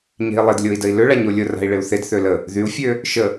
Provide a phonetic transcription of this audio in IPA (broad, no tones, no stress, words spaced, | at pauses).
ɲe̤i̯lˠɪd lʲoi̯dəi̯lʏ ɭaɲolʲʊra̤i̯ ɭɪu̯θed θølə | ðyu̯fʲø | ʃə